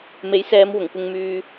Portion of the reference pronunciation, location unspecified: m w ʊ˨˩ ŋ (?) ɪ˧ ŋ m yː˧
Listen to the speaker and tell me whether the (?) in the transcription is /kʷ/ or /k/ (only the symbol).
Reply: kʷ